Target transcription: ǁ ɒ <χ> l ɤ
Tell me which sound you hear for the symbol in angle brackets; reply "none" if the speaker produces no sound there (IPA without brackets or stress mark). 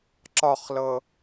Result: χ